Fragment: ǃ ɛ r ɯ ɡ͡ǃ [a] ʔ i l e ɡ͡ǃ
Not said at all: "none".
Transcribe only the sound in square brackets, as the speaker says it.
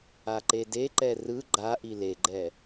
a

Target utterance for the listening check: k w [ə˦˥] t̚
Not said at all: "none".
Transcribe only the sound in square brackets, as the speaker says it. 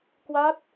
a˦˥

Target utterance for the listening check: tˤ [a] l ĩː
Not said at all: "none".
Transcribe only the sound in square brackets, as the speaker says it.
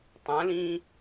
ã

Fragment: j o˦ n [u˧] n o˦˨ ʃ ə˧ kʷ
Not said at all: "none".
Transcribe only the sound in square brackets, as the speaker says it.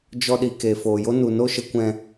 u˨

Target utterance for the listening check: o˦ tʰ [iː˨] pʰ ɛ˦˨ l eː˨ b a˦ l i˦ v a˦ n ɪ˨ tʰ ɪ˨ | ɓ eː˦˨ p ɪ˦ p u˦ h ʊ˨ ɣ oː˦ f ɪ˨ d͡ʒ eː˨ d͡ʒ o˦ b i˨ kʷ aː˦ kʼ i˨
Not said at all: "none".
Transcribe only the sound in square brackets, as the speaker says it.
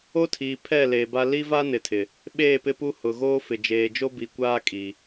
iː˨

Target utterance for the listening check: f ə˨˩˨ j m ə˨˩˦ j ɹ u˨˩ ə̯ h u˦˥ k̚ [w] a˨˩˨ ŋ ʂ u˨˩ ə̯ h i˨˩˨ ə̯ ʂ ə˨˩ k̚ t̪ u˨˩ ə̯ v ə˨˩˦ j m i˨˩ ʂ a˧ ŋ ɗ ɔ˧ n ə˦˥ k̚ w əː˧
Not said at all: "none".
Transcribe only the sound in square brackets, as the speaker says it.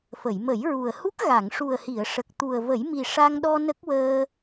ɣ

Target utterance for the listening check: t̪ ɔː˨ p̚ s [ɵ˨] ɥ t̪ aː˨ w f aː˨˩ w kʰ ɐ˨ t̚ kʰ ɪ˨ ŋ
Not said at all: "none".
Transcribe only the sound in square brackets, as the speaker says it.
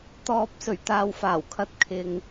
ɵ˨˩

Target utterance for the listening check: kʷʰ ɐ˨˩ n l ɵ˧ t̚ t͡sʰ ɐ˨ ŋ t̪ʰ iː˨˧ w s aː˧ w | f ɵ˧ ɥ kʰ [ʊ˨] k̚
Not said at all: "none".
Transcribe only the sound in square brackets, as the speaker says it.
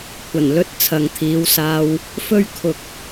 ʊ˨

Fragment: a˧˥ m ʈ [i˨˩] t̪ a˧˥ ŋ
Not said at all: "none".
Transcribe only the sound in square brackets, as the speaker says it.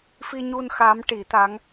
i˨˩˦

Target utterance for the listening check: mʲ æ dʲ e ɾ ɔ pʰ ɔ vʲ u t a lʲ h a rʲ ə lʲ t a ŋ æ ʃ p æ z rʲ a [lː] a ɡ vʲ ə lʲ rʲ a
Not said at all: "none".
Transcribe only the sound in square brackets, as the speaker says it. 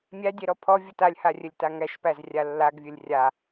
lː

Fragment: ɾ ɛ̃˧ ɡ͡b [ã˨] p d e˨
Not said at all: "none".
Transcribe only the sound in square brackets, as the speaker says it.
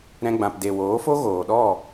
ã˨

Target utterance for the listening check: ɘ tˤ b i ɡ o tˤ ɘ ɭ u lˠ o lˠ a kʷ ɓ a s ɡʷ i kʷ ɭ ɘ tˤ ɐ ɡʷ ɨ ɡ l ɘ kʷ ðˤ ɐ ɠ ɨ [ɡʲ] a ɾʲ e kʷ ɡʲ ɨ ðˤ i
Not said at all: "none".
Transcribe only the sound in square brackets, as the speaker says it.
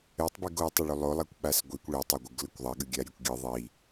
ɡʲ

